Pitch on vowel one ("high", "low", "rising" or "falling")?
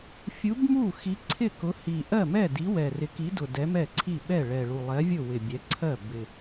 rising